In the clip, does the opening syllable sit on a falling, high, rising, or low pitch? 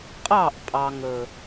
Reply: falling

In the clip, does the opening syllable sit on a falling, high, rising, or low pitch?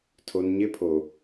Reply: low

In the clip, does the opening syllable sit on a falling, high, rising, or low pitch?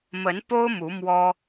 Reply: rising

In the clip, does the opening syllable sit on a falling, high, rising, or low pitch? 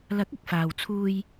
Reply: rising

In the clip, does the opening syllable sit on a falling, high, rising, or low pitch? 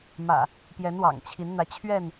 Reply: low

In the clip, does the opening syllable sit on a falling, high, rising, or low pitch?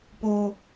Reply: high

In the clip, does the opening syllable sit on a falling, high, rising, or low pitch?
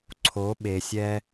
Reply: rising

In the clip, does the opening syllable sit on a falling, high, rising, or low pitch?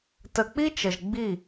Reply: low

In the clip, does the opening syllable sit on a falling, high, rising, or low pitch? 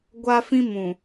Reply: high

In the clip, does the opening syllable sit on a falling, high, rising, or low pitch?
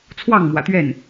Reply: falling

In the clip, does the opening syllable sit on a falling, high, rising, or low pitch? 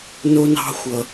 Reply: high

